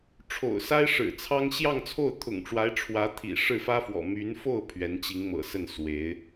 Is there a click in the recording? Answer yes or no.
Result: no